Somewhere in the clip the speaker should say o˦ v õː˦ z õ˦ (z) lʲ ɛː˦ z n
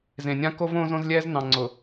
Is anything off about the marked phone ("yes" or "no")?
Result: no